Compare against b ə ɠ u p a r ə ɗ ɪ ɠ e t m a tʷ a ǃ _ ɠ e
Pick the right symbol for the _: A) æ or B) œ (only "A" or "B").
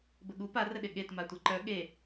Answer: B